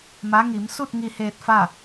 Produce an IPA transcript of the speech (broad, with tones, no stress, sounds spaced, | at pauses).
m a˧˥ ŋ i˩˧ m s u˥˨ t̚ ŋ i˧ h eː˧ t̚ f a˥˨